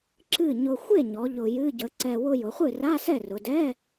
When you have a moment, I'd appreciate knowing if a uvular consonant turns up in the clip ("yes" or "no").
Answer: yes